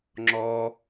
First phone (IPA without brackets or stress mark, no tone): ŋ͡ǁ